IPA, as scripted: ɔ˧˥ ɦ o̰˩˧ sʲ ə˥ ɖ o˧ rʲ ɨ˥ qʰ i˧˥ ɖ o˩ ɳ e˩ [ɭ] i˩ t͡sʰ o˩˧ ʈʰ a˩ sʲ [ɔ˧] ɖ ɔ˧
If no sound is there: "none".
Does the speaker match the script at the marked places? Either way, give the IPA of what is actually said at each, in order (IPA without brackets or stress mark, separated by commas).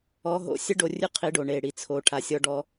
ɽ, ɔ˧